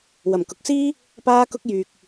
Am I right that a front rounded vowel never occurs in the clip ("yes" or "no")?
no